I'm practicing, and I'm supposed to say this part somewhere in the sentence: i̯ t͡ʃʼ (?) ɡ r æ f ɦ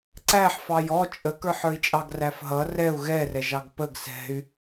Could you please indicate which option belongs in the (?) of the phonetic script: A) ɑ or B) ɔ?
A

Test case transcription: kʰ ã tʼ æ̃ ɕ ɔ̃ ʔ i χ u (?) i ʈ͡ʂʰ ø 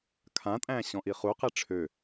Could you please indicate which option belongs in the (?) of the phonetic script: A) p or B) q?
B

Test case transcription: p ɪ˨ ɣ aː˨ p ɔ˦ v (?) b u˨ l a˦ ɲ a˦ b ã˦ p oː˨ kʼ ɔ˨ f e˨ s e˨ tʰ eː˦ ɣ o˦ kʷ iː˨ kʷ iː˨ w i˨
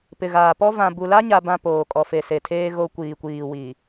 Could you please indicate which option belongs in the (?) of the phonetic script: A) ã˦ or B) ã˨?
B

